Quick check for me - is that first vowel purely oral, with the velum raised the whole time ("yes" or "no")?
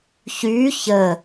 yes